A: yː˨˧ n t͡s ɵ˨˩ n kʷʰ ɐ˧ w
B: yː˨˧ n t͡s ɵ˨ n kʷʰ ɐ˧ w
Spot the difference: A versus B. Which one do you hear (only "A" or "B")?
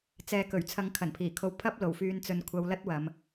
B